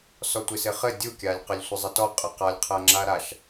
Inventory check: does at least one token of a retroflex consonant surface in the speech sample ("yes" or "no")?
no